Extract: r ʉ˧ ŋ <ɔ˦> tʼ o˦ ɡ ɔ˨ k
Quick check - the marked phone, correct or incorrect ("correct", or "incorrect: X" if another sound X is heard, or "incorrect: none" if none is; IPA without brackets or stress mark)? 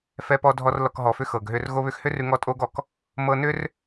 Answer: correct